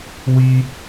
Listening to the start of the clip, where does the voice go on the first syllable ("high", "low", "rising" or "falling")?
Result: high